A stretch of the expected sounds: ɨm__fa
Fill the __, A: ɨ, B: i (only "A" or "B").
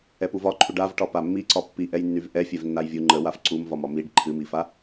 B